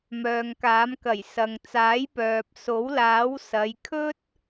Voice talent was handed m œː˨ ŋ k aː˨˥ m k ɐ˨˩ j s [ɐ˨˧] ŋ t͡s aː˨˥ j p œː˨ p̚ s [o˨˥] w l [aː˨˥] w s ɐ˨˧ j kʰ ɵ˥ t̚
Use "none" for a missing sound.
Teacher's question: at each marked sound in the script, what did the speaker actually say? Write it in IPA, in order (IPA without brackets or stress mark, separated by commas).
ɐ˨, o˨˥, aː˨˥